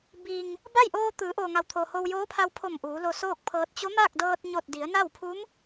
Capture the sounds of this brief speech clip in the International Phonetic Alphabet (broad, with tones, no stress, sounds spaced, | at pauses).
b i˩ ŋ | b a˥˨ j ʔ oː˧ t̪ ɯː˩˧ ʔ oː˩ ŋ a˩ w t̪ʰ o˩ h o˧ w j oː˧˥ pʰ a˧ w pʰ o˧˩ m ʔ uː˩˧ l o˧ s oː˥˨ k̚ pʰ ɤː˧ t̚ t͡ɕ o˧˥ m aː˥˨ k̚ d ɤː˧ t̚ ɲ o˧˩ t̚ d i˩˧ ə̯ n a˥˨ w pʰ u˧˥ m